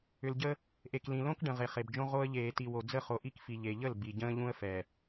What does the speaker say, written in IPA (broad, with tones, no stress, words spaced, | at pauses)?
ʏ˨lɟə˦ | ʔe˨k lĩ˨lõ˦k ɖə̃˨ ʁe˨χe˨bd͡ʒõ˦ ʁo˦ə̯ ʎeː˨ti˨wo˨ d͡zə˦˨χo˨ʔi˦kfi˨ ʎe˨ʎə˦˨l bi˨ɟə̃ː˦ʎũ˦ə̯fɛ˨